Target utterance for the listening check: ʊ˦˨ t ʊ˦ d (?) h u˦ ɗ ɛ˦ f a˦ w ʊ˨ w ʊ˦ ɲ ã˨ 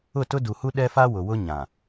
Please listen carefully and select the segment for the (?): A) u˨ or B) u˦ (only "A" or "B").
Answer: A